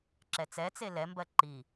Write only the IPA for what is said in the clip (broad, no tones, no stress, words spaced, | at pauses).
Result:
ǁɛt͡sɛ t͡selɛmbɜ ǃi